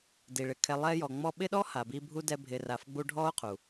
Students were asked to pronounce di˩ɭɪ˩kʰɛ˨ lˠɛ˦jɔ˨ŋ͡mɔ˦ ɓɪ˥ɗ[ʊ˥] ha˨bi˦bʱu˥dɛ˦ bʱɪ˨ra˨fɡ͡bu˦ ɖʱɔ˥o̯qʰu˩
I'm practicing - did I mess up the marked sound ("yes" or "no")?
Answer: yes